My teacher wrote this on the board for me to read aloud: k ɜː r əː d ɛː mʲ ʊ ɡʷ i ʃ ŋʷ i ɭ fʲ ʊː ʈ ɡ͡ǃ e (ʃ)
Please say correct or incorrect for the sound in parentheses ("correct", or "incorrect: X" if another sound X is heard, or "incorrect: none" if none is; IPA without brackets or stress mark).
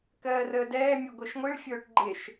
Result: correct